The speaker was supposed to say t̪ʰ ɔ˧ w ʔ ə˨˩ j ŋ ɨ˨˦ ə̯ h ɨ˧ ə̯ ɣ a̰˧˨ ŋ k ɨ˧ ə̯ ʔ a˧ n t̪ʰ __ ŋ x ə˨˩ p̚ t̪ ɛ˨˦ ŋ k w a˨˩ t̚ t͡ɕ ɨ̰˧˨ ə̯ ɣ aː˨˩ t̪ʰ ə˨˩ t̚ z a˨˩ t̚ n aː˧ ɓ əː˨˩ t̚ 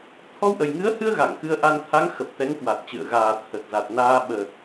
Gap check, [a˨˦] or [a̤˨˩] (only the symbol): a˨˦